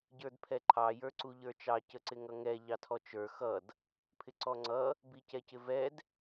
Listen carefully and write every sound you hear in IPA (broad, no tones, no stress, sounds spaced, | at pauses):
ɟ ə˞ d pʰ ɛ ǃʰ ɑ j ə˞ ǀ u ʎ ə˞ t͡ʃ ɑ c ə ǀ ɪ ŋ ʌ ŋ ɛ ʎ ɑ tʰ ɔ t͡ʃ ə˞ x ʌ d | pʰ ɪ ǀ ɔ ŋ͡ǀ ʌ | b i c ɛ c ɪ v ɛ d